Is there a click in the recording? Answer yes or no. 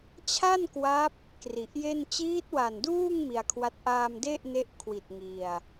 no